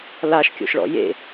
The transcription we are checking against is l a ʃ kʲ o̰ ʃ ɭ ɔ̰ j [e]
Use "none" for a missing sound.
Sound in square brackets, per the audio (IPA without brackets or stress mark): ḛ